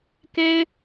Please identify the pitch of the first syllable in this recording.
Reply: high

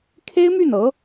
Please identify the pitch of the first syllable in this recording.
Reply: high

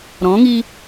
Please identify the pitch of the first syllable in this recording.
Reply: rising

